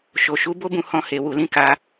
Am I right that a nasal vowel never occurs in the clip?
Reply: no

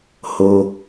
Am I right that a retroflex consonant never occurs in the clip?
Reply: yes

